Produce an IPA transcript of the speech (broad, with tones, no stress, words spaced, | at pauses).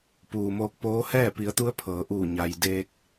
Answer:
puː˩moː˧k̚poː˧˥ hɛː˥˨pi˩˧ə̯t̪u˧˥ə̯ pʰɤː˩˧ʔuː˧˩ ɲa˩jdeː˧k̚